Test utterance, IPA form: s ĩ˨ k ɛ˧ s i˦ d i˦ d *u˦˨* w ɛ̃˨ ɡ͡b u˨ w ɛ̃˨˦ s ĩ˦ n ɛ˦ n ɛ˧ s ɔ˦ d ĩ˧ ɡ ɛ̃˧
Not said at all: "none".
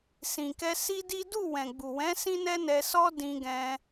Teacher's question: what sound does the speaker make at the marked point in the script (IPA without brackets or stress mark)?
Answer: u˦˨